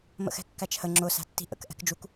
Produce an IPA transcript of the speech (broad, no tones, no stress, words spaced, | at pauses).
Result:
mə̰xɛ̤kːæt͡ʃhə ŋ͡ǁʊ sæ̤tːi̤ʔə̰k ʔɛ̤kd͡ʒuk